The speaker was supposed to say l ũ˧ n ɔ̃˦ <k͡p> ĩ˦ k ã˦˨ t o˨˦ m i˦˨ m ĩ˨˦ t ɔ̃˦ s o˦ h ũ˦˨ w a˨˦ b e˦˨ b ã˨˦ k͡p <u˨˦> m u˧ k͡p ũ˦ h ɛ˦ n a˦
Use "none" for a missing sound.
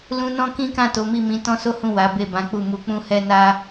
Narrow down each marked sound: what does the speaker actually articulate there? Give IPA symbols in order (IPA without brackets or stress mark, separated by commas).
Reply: k, u˦˨